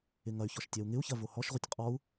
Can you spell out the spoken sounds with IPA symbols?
ɪ ŋ ɐ y̯ ç ɔ ʃ tʲ ɛ u̯ ŋ ɪ u̯ ç ɐ v o h ɔ ʃ ʁʷ ɪ tʲ qʼ ɔ u̯

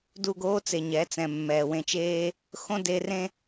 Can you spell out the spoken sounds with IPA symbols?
d u˦˨ ɡ oː˦ t͡s e˨ ɲ ɛ˨˦ t͡s ɛ̃˨ mː ɛː˨ w ẽ˧ t͡ʃ eː˦ | x õ˦ d e˧ r ẽ˦

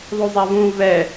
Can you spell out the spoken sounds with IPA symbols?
ðˤ u zˤ a v ũ v ɛ

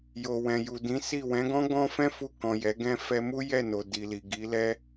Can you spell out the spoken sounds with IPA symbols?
j o˨ w ɛ̃˨ j u˨ d ĩ˨˦ s i˦˨ w ɛ̃˨˦ ɡ ɔ̃˦ ɡ ɔ̃˦ f ɛ̃˦ f u˧ k ɔ̃˨ j ɛ˨˦ ɡ ɛ̃˦ f ɛ˧ m u˦ j ɛ˦˨ n o˨ d i˨ l i˨ ɡ i˨˦ l ɛ˦

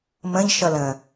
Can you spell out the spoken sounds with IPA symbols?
m ə̃ ʎ ʃ ʌ l ə̃

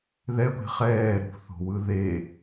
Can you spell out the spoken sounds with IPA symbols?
ð ɛ ɡʷ e̤ χ ɛː ɾ ṳ θ o̤ w ɯ ð e

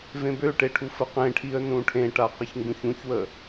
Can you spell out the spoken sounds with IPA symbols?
v ẽ b ø ʈ e ʈʰ u f ə q ẽ ʈʰ i ə̯ n ũ ʈʰ ẽ ʈ a q ə ç ŋ ɡ ũ ç ũ ç w ə

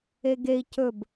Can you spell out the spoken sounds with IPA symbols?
e ɡ e i̯ c ɵ b

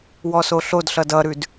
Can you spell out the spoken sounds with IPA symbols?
w ɔ s o ɬ o d ɬ ʌ d ʌ ɾ ʉ d

